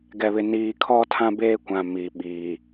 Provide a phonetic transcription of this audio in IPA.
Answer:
ɡɛ˨βɪ˨ niː˨kʰɔ˦ tʰã˦beː˦kʷã˨ mi˨ɓiː˨

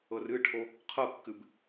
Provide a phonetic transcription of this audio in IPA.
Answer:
ɤrɨʈʰo | qʰɤkːɨb

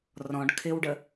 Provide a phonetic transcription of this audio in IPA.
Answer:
rɔ̃ɖ kʰɪwɖə

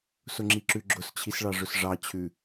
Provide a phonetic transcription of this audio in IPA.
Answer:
sʊŋ͡ǁiǁʉɡ͡ǁʊs t͡ɕʰisɭɑʐʊsʐɑ t͡ɕʰʉ

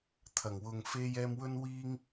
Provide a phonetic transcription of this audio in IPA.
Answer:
t̪ʰɐ˨˩ŋwʊ˨ŋ fe˧j ɛː˧mwɵ˥n wiː˥ŋ

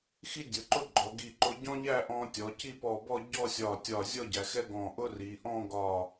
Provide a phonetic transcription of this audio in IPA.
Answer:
xi˥ dʲʊ˩˧ǃʊ˥˧ ɡ͡ǃɔ˩˧ ɡi˧˩ǃʊ˧ɟɔ̃˥ ʎæ˥˧ʔɔ̃˧ tʲɔ˩˧ci˥˧pɔ˧˩bɔ˥˧ ɟɔ˥˧sʲɒ˧˩tʲɒ˧˩ zʲɔ˥˧ɟæ˩˧ xɛ˥ɡɔ̃˧˩ ʔʊ˥ri˩˧ ʔɔ̃˥˧ɡɒ˧˩

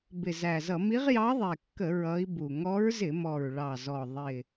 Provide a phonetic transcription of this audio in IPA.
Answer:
bɪ˨˩zæ˨˩zʌ˧˩˧ mi˧˥ʁjɑ˧˥ðˤɛ˨˩kːə˧˩˧ ɹʌ˧˥i̯bu˨˩ ŋɔ˧˥ɹzɪ˧˩˧mɔ˨˩ɹ ɭɑ˨˩zɔ˨˩ ðˤɪ˨˩

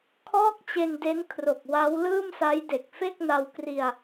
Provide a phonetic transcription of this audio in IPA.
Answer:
kʰɔː˥˩k̚t͡ɕe˧nde˦˥n kʰro˨˩k̚wa˦˥w lɯː˥˩msa˦˥jde˨˩k̚ fe˥˩k̚na˧wkri˧a̯

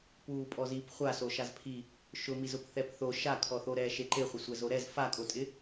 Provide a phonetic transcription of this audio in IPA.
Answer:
puːpʼɔzip χʷasoʃaz pʰi | ʃʊmizʊp θɛpθo ʃakʰɔθoɾɛː ʃeǃeχʷɪ sʷɛzoɾɛz fakʼotʼɪ

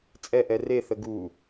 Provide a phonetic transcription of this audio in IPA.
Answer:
t͡sʼɛʔɛ reθə ɡu

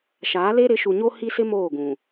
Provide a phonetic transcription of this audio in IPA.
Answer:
ʃaː˨˦le˦ ɾɪ˨˦ʃu˨ɲo˦ hi˦sɪ˦ moː˦˨ɡũ˨

